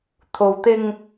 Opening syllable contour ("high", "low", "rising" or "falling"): low